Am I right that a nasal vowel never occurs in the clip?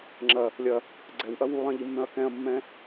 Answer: no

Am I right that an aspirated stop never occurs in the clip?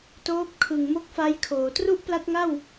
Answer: no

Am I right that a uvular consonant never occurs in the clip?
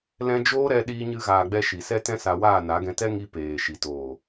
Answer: yes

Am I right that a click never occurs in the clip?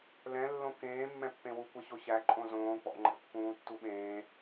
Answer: no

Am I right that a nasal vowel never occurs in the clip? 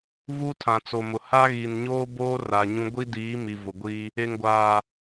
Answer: no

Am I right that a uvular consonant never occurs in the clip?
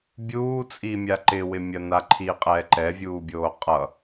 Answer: no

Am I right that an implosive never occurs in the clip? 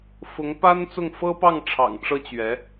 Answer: yes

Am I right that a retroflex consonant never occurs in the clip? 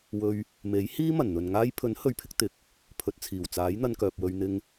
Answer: yes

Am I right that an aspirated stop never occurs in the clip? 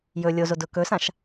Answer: yes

